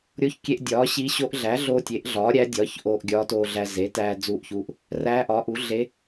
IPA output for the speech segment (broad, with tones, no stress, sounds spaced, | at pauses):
ɾʲ o˧˥ ç kʲ e˧ ʔ dʲ ɒː˩˥ ɕ i˧˥ ɕ o˧˥ ʔ ɮ æ˩˥ ɮ oː˧ tʲ e˩˥ ʔ ɮ ɒː˩˥ ɾʲ æ˧˥ dʲ ɒː˩˥ ç ʔ oː˧ ʔ ɡʲ ɒː˧˥ t oː˧ ɮ æ˧ z e˩˥ t æː˧ d͡z uː˧˥ ʔ ç u˧˥ ʔ | r æː˧˥ ʔ ɒː˩˥ ʔ u˩˥ ɮ e˧˥